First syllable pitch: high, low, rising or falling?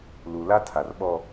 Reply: low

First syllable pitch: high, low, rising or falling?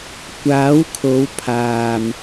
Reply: rising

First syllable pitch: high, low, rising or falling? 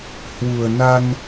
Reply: low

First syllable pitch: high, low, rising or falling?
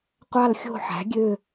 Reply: falling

